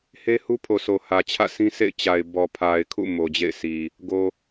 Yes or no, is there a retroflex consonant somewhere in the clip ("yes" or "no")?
no